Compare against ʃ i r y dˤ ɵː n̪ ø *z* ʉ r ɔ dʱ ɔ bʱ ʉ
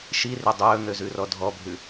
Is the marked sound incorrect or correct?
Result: correct